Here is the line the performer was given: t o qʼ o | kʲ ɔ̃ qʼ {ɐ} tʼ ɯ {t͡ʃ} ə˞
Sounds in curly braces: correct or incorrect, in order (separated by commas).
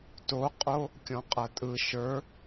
correct, incorrect